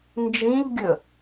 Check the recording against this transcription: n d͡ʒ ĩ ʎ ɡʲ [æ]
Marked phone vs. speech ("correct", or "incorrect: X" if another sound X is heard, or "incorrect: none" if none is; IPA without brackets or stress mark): incorrect: ə